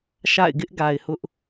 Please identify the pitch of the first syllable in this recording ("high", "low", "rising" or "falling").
falling